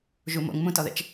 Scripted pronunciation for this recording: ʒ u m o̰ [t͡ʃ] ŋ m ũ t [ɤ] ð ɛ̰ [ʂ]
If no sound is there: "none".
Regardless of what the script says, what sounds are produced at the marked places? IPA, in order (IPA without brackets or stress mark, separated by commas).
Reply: none, ɔ, t͡ʃ